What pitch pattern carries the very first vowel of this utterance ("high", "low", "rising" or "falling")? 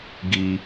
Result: high